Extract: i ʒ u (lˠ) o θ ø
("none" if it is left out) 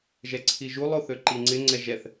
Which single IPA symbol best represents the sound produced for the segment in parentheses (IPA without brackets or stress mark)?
lˠ